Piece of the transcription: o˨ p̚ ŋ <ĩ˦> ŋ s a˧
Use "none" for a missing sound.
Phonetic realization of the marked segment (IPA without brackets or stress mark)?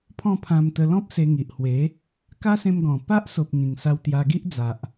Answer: ĩ˨˩